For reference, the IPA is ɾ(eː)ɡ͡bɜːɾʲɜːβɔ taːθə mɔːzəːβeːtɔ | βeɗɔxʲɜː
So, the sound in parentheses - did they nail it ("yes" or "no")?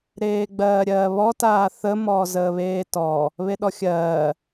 yes